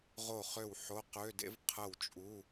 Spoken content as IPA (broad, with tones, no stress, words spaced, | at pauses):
ʁo˥˩χø˥˩w ħo˧˥˧qø˧˥˧dḛ˥v qʰə˥˩wt͡ʃʼu˧˥˧